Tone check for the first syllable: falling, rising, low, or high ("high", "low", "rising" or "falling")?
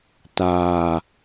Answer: low